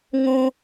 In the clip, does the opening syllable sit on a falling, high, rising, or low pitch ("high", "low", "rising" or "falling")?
high